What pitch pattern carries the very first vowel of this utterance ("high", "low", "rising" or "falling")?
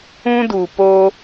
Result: high